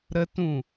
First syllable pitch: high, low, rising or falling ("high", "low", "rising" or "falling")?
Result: high